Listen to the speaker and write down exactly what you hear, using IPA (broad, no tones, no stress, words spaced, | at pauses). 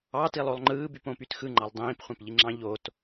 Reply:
ɑtilˠolˠ ŋ͡ǃɯːbypõpyt xɯŋ͡ǃɑlˠ dˤĩːpχʷɑ̃pʎiŋ͡ǁɑ̃ ʎot